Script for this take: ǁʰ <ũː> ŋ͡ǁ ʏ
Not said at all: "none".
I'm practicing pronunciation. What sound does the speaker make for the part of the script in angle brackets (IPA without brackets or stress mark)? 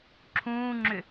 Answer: ũː